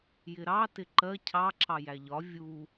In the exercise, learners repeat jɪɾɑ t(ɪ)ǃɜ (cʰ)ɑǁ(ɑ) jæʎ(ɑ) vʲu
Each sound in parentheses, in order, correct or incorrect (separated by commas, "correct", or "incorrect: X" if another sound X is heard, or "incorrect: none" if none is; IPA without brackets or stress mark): correct, correct, correct, incorrect: ɒ